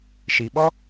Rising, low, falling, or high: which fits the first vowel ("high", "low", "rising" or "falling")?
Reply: low